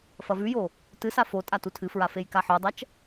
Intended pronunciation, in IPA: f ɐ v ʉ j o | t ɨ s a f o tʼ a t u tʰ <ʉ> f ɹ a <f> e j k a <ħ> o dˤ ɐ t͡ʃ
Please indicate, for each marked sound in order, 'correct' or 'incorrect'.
incorrect: ɨ, correct, correct

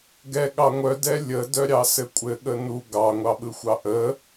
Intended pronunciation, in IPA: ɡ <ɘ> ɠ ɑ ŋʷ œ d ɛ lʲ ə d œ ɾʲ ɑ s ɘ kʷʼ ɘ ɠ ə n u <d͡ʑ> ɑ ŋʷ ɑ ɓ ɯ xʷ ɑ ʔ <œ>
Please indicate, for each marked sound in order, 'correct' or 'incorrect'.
incorrect: ɛ, incorrect: ɡ, incorrect: ə

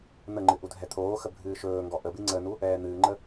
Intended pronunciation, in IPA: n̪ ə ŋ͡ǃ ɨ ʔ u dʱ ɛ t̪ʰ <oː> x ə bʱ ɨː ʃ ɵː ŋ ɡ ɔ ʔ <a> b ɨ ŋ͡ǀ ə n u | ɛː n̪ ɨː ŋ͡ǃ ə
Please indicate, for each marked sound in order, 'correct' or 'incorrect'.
correct, incorrect: ə

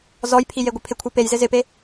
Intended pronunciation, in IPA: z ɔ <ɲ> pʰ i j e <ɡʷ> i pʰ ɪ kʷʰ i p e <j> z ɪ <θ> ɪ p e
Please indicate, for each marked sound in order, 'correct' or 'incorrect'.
incorrect: j, correct, correct, incorrect: z

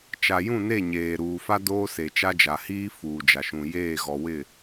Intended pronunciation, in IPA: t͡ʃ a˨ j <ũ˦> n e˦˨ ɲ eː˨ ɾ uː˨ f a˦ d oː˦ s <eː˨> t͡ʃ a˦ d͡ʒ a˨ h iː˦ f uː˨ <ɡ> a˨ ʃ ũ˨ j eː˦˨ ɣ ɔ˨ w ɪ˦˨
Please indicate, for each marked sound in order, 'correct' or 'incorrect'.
incorrect: ũ˦˨, incorrect: e˨, incorrect: d͡ʒ

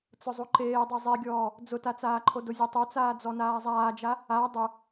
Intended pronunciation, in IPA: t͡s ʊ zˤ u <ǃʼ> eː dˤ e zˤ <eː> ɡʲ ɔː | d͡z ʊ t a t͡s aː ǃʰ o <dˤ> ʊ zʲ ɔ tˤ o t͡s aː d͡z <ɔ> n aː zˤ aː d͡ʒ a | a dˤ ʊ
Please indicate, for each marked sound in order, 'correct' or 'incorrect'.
incorrect: ǃ, incorrect: e, incorrect: d, correct

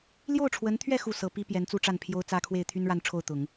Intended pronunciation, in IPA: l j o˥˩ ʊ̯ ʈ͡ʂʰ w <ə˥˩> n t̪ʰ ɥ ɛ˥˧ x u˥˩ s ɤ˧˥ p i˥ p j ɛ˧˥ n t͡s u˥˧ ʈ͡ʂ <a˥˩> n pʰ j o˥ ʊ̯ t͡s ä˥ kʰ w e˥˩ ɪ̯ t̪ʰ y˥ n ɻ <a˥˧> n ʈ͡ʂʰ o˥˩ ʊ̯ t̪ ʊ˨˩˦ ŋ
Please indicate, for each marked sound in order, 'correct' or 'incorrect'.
incorrect: ə˧˥, correct, correct

